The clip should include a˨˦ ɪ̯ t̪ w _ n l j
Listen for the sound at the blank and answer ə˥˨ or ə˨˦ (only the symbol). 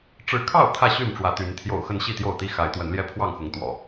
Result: ə˨˦